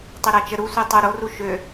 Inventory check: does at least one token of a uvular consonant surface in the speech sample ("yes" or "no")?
no